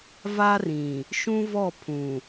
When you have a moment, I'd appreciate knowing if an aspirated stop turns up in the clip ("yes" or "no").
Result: yes